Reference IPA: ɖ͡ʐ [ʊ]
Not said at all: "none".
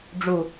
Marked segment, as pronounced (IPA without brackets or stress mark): u